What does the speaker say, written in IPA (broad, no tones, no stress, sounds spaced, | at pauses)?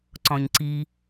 ǀ ɔ̃ ɲ ǀ i